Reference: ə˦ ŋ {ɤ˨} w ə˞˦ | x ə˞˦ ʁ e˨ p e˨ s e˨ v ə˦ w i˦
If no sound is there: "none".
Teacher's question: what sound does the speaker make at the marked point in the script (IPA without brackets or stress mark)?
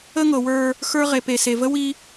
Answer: ɤ˨